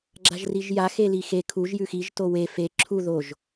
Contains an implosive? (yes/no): no